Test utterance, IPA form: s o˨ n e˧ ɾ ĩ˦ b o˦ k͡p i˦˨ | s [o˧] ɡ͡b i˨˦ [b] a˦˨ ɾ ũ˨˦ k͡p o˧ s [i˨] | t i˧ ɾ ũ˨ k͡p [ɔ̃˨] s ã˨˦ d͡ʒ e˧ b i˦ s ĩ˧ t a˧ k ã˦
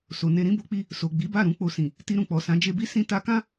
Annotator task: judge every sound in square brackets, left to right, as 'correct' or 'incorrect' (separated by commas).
incorrect, correct, incorrect, incorrect